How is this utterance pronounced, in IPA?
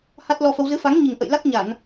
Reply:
ha˦˥t̚lɔ˧fə˧w zɨ˨˦fa˨˦ŋ ɲi˨˩ŋʔə̰˧˨j la˦˥k̚ɲa˧˩˨n

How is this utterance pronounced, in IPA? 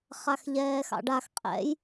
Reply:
χaxʎɛːxɑ̰ɖax qʼɛ̰j

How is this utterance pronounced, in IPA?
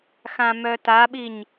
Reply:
xãmœtaɓiɲ

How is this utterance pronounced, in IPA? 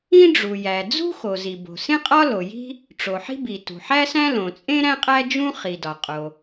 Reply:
ĩ˥ ɖ͡ʐu˩jæ˩ d͡zṳ˥xo˩ zi˩bo̤˩ sẽ˥qʼɒ˥lo˩ ji̤˥ | ʈ͡ʂo˩ħi̤˥bi˩ tṳ˩ħæ˥sæ̃˥ lõ˩t͡sʼẽ˥ ɾæ̃˥qʼæ˥d͡ʒũ˥ χi˩dɒ˩qʼo˩

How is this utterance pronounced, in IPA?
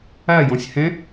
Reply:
ajɔ̃sʲ hɛ̃

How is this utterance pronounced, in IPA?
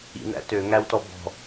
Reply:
ḭn̪æ̰ tøŋæwtɔ bɔ̤

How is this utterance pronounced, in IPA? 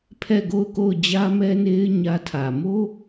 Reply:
pʰɛ˦˨ ɡo˦˨ʊ̯ko˦˨ʊ̯d͡ʑä˦ mɛ˦ne˦ɪ̯ ɲä˦tʰä˨ mo˦

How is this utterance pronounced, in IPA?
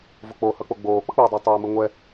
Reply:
vok͡pohʌk͡po ɡ͡boːk͡pʌk͡poːdˤɯː tˤoːmɯŋʷɛ

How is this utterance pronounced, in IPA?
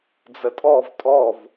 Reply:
d͡zətʼɔv tʼɔv

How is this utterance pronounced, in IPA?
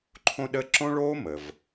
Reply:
ǃʰõ˥ɗə˥ ǁõ˥ɭoː˥mə˩v

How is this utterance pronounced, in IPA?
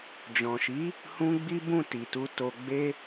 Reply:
d͡ʒɔ̃˨ʃi˨˦ | hũ˧ ɡ͡bi˦bũ˦˨ti˨tu˧ to˧ɡ͡be˦

